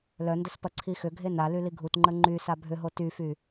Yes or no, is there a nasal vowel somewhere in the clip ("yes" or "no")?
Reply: no